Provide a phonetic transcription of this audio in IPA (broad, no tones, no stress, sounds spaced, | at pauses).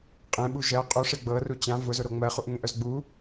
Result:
qʼ ẽ ɓ u ʒ ɜ qʼ u ʂ e ɡ͡b ɤ r u t͡ɕ ã v ʊ z ʊ ɾ o ŋ͡m ɜ χ u ʔ ŋ ẽ ʔ œ z ɡ͡b u